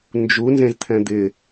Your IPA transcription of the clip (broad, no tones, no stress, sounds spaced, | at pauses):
n d͡ʒ u n z ẽ z t̪ʰ ɛ̃ d̪ ɪ